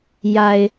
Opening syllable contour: low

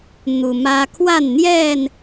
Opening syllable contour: low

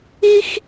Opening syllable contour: high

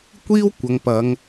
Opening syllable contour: high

